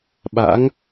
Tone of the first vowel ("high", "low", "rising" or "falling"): rising